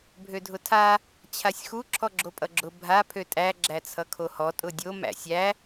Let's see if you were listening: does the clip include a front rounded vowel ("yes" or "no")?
yes